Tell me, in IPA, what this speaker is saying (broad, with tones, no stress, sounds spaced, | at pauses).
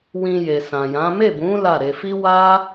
w ĩ˧ j e˨ s ã˨ j ã˨˦ m e˦˨ b ũ˨˦ l a˦˨ ɾ e˧ f i˦ w a˦